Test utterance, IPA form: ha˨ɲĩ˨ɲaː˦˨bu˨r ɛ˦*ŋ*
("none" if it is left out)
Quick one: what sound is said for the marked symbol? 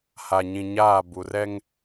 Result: ŋ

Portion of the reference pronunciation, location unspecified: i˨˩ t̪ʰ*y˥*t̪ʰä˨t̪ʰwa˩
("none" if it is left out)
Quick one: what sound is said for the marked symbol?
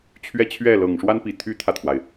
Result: y˥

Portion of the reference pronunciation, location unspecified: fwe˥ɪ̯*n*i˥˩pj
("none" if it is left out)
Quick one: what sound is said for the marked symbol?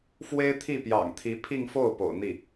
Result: t̪ʰ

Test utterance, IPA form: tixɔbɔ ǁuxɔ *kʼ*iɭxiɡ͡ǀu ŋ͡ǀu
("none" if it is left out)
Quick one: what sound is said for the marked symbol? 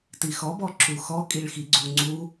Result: kʼ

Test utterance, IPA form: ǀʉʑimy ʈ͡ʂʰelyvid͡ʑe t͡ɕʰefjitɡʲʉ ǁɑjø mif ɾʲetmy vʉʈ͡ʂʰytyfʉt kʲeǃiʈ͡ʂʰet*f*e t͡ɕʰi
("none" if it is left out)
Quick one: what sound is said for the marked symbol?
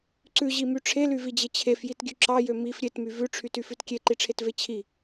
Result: v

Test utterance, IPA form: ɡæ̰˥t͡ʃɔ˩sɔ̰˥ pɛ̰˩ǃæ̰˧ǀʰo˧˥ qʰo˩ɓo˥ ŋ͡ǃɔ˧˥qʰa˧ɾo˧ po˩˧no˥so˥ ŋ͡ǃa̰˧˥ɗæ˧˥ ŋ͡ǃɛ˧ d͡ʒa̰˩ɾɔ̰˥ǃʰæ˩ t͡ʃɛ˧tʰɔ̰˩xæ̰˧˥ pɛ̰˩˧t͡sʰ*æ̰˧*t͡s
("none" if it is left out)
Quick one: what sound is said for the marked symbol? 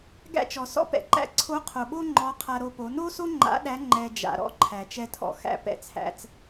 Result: æ̰˩˧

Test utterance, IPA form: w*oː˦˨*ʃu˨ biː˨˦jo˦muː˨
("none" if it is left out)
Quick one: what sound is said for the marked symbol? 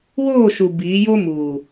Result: oː˦˨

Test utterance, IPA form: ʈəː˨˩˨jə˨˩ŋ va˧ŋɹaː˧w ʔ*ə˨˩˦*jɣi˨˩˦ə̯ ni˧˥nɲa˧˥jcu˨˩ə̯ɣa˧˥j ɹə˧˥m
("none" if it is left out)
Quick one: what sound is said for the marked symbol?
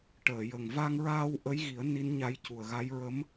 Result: ə˧˥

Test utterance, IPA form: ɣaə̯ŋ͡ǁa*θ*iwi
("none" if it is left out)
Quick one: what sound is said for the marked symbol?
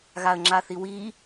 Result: θ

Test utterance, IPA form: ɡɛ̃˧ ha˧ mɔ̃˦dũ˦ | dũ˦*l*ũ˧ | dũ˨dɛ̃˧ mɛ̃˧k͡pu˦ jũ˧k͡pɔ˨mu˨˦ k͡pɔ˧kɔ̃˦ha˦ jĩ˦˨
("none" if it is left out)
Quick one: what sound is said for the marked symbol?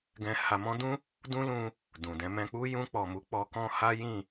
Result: l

